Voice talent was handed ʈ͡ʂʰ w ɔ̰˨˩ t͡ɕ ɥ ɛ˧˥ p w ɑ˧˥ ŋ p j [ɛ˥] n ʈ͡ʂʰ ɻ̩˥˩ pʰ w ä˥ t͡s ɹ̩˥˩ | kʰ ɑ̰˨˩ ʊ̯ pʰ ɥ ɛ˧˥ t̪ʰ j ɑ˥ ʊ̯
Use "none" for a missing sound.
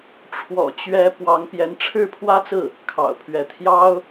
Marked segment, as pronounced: ɛ˧˥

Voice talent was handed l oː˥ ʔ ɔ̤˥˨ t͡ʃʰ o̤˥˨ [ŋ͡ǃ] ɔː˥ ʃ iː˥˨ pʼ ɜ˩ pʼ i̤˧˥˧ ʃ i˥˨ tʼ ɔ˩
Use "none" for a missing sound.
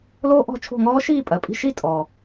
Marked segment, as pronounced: ŋ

